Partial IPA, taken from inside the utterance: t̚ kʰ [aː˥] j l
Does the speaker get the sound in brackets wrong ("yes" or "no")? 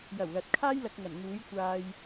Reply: no